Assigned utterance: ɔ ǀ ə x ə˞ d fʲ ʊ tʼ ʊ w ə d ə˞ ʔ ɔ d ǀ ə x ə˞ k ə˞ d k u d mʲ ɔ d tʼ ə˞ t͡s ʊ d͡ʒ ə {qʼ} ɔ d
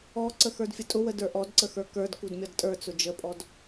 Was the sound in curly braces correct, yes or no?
no